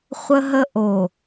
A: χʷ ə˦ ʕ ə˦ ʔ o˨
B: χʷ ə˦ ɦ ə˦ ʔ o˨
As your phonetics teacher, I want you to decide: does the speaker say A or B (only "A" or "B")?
B